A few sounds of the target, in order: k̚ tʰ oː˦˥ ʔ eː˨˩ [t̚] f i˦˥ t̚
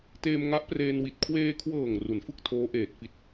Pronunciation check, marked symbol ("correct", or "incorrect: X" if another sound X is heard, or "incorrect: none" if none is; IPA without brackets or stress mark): correct